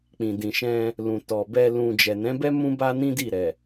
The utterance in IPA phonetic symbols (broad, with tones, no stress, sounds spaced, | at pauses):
k͡p ĩ˨ d ĩ˨ ʃ ɛ̃˧ | l ũ˨ t ɔ˨ b ɛ˧ l ũ˧ d͡ʒ ɛ˨ n ɛ̃˨˦ b ɛ˦ m ũ˦ b a˦ n ĩ˦ d i˦˨ ɾ ɛ˨